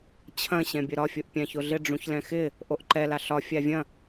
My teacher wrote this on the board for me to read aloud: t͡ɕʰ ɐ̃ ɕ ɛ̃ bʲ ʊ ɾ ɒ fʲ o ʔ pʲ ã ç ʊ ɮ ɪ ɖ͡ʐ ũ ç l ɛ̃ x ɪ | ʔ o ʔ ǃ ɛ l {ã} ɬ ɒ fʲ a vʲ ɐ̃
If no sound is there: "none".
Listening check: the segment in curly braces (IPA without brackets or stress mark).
a